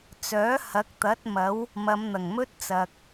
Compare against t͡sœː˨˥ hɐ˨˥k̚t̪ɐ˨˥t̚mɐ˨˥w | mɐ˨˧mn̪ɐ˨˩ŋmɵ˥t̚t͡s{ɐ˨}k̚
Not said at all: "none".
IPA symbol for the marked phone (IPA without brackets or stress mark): ɐ˨